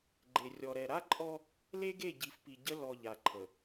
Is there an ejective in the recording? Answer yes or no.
yes